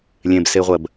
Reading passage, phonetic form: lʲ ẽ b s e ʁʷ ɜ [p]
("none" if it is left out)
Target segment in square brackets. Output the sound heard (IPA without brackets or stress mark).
b